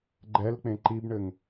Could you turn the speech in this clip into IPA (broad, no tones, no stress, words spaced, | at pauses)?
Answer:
ɡ͡ǃɛlk͡pẽ ǃibɳɘŋ